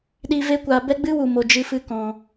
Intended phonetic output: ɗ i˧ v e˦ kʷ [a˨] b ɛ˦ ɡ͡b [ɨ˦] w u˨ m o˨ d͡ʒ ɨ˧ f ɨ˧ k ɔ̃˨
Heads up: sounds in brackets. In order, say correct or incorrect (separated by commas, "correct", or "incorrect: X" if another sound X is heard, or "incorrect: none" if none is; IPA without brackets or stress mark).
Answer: incorrect: a˧, correct